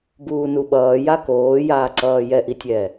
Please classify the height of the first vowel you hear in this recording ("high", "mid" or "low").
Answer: high